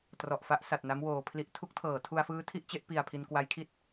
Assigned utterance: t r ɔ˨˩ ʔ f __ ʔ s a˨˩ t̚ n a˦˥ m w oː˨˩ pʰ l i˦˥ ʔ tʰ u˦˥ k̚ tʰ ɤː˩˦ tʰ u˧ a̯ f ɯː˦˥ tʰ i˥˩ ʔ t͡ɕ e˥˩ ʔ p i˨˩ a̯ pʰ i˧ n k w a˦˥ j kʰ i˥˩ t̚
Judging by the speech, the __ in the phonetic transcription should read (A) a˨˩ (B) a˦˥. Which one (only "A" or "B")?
B